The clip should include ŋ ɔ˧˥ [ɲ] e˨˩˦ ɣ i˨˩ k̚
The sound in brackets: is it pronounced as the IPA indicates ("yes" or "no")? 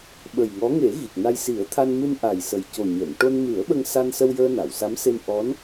no